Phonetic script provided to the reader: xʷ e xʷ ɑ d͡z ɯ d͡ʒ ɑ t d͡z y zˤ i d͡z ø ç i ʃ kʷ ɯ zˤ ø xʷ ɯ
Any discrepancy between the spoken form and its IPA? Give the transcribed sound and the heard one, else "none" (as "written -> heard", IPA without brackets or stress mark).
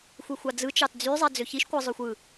d͡ʒ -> t͡ʃ